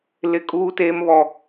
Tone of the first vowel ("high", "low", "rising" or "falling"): high